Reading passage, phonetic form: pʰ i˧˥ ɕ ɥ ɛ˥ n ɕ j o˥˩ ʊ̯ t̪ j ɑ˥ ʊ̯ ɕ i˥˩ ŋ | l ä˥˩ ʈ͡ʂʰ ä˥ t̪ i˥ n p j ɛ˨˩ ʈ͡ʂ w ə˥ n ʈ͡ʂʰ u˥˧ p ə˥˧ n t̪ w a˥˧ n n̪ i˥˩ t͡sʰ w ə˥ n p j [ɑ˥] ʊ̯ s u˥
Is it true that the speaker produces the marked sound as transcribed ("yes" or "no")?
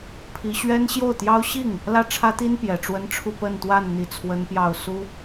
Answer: no